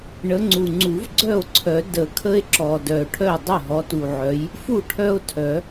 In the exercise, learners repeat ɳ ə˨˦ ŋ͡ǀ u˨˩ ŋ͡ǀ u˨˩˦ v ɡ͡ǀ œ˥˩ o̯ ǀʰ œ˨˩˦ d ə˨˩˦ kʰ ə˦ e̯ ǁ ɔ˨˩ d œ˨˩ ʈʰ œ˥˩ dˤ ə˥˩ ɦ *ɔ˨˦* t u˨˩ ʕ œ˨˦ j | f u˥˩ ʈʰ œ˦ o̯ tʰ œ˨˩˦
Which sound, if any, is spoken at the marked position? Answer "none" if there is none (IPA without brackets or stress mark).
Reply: ɔ˨˦